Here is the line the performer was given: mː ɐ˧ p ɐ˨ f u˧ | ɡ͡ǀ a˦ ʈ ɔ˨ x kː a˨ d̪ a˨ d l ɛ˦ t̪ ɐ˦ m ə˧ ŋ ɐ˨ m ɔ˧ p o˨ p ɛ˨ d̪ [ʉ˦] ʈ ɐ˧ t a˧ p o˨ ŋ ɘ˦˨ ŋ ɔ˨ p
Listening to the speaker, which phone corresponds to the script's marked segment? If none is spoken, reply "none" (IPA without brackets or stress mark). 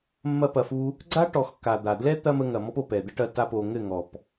ə˦